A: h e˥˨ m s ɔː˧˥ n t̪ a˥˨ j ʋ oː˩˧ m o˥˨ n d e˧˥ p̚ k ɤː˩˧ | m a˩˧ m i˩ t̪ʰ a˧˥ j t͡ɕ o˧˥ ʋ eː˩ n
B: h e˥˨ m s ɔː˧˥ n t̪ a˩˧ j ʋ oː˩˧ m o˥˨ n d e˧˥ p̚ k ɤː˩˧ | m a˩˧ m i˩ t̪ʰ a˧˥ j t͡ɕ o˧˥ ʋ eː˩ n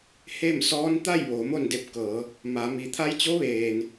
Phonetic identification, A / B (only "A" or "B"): A